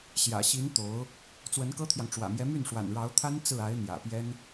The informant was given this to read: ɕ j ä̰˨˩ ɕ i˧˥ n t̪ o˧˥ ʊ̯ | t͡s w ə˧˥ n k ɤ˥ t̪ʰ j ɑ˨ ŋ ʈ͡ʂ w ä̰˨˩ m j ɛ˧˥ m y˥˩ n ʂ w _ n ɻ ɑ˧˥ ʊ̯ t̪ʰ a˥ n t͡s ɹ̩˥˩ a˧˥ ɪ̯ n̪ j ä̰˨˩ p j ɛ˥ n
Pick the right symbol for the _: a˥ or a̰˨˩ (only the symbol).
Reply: a̰˨˩